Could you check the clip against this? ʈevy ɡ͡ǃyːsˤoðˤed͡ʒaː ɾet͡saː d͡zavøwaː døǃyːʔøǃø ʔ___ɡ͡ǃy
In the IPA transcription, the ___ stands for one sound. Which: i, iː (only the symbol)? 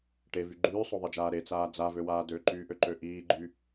iː